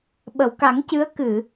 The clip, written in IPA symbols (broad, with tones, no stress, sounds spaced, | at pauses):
ɓ ə˨˩˨ w k a˨˩˦ ŋ c ɨ˧˥ ə̯ k ɨ˨˩˨